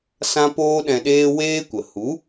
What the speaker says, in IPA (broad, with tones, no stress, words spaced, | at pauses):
sã˦poː˦ɗɛ̃˧ɗeː˦ weː˦kʷə˨ hu˨˦